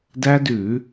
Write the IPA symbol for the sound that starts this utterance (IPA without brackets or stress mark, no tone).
d